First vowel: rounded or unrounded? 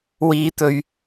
unrounded